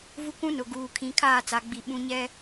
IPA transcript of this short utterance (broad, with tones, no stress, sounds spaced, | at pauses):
v u˦ kʷ ũ˦ n ʊ˨ ɡ uː˨ kʰ ĩ˨˦ kʰ aː˦˨ t͡s a˨˦ ɡ͡b i˨ ɓ ũ˦ ɲ ɛ˦